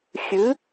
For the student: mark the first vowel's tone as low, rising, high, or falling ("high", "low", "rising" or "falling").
rising